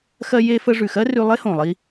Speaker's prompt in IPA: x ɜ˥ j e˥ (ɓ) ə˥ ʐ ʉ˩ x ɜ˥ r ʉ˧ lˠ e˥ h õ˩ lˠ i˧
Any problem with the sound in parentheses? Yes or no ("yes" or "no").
yes